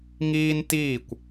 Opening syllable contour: high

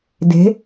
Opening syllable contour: rising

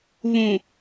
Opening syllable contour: low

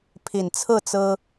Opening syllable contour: low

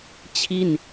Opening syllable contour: falling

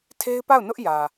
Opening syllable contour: high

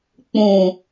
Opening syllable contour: low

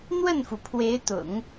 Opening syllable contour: falling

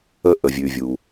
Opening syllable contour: high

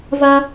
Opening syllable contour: high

